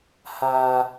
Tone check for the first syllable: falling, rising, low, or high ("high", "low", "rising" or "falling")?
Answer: high